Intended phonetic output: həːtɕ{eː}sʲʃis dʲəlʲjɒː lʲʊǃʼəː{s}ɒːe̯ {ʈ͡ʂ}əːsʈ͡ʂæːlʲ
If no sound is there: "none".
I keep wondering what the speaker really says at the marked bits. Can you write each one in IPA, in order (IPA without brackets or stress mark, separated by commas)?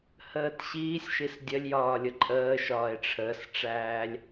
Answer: iː, ʃ, ʈ͡ʂʰ